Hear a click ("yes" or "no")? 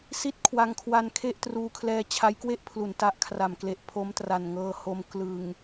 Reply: no